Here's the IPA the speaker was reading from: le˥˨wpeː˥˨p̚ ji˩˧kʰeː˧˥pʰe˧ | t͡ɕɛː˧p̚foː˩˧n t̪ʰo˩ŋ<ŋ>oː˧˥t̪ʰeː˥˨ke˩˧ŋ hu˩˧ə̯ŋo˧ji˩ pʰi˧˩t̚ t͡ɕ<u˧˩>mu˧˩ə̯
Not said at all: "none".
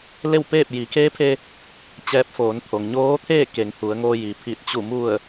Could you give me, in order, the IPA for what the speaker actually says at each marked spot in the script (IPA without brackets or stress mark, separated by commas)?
ɲ, u˧˩